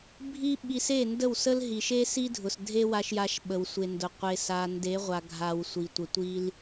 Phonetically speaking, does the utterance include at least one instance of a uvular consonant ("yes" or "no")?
yes